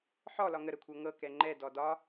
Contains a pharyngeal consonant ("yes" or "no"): yes